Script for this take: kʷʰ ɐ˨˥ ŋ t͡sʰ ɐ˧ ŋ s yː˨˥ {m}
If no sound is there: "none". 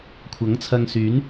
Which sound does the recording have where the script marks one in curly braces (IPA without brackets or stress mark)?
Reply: n